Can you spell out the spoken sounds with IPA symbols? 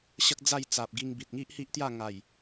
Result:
ɕ ə˦ k̚ d͡z a˥˧ j t͡s a˨ p̚ ɡ i˧ ŋ b i˨ t̚ ŋ i˦ ʔ h i˦ ʔ t̪ j a˥˧ ŋ a˨˩ j

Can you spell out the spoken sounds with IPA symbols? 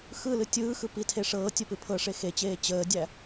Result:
x ɯ l ɨ tʲ ɯː x ɯ p i tʰ e ʂ ɤː tʲ ə p ɨ pʰ ɤ ʂ e x e t͡ɕ eː t͡ɕ əː dʲ æ

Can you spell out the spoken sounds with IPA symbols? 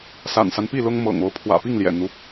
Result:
s a̰˨˩ n s a˦ n p i˥˨ l ʊ˦ ŋ m ɤ̰˨˩ ŋ o˨˦ ʊ̯ pʰ w ä̰˨˩ p i˥˨ ŋ l j ɛ̰˨˩ n̪ u˦

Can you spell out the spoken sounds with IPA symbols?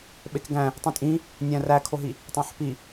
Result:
ɓ e k ɡ æ̃ | tˤ ĩ tʼ ĩ | nʲ æ̃ r æ kʰ o ɦ i | tˤ æ̃ ħ p i

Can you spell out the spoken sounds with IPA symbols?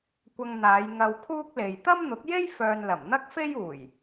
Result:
kʷ ɐ˧ ŋ n̪ aː˨˧ j ŋ ɐ˧ w kʰ uː˥ k̚ l e˨ j t̪ ɐ˥ m n̪ ʊ˨˥ k̚ j e˥ j f œː˨ n l ɐ˨˩ m n̪ ɐ˥ k̚ f e˥ j uː˨˩ j

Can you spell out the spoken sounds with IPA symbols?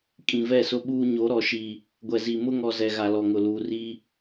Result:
kʼ ĩ˨ v ɛ˦˨ s ʊ˦ ɓ uː˦ ɲ o˨˦ ɾ ɔ˨ ʃ i˨ | ɡʷ ɛ˨ z i˨ m ʊ˦ ŋ ɔ˨ z ɛ˨ ɣ a˨ l ɔ˨ ŋ ʊ˨ l uː˨ r i˦

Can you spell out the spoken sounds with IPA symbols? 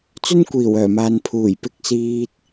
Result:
t͡s ɵ˥ n kʷ iː˨˩ w œː˨˩ m aː˨ n pʰ uː˨˩ j p ɪ˧ k̚ s iː˧ t̚

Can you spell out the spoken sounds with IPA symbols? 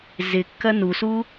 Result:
z ɪ kː ɐ n u s u

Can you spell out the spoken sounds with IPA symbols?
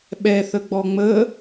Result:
ɓ ɛ θ ə ɡ͡b ɔ ŋ͡m ə

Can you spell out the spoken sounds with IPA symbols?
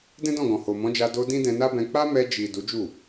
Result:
d ɛ̃˦ d ɔ̃˦˨ ɡ ɔ̃˨ h o˨ m ɔ̃˨˦ d͡ʒ a˧ d o˧ d ĩ˦ d ɛ̃˧ n a˦ b ɛ̃˧ k͡p a˦ m ɛ˧ d͡ʒ i˨ d u˨˦ d͡ʒ u˦˨

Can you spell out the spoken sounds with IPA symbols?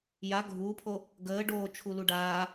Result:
j a ɡʱ u pʰ o | ɡ əː ɖ oː t͡ʃʰ u l u ɖ aː

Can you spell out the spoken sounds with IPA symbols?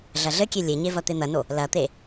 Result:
ɮ ɐ ɮ ɘ kʲ e lʲ e ɲ e v ɐ t̪ e n̪ ɐ n o | l ɐ t̪ e

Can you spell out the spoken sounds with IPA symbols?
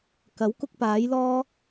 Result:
k ɐ˨˥ w k ʊ˥ k̚ p aː˨˥ j l ɔː˥

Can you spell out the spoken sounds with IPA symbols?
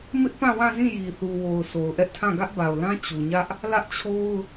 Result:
m ɪ˦ ʔ p ã˦˨ w ã˦˨ z ĩ˦˨ j i˨ θ u˨ w o˨ ʊ̯ s o˨ ʊ̯ ʔ ɛ˦ ʔ tʰ ã˦˨ ɡ ä˦ ʔ b a˨ ʊ̯ l ã˦ t͡ɕ u˨ ɲ ä˦ ʔ | l ä˦ ʔ t͡ɕʰ o˦ ʊ̯

